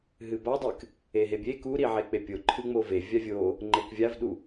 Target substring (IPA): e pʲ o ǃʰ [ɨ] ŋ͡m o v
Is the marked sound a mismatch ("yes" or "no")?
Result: no